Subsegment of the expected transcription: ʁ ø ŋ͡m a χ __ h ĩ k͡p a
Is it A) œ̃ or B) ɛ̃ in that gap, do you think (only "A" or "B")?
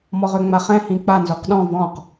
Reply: B